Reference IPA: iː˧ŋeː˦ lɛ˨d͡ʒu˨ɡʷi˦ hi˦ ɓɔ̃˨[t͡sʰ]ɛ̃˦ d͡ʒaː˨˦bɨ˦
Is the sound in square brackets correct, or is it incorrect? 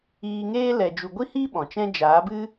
incorrect